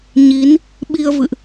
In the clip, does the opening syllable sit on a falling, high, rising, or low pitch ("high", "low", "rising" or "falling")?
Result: rising